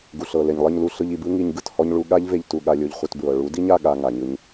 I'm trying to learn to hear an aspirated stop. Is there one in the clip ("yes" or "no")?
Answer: no